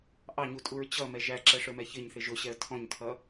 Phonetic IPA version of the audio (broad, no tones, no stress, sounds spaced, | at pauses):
ʔ ɑ ɲ u tʼ u ɹ t͡ɕ ʌ m ɛ ʒ æ ǁ ɛ ʂ ə˞ m ɛ ç ɪ ɲ θ ɪ ʒ ʊ ɕ ɛ ə̯ tʰ ɔ̃ ɲ tʰ ʌ